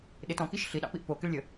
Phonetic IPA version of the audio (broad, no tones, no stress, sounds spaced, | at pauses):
ɗ ɪ t ɔ̃ k i ʃ ɬ i ɗ ɑ̰ p i ʔ p o k ɪ ɭ lʲ ə